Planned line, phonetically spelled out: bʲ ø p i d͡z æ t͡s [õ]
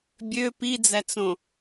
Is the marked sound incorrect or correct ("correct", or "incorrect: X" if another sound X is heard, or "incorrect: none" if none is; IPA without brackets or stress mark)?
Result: correct